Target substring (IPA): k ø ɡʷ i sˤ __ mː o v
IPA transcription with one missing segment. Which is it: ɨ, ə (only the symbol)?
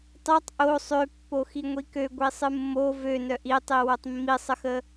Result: ɨ